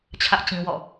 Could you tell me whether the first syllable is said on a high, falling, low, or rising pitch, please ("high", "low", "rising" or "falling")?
high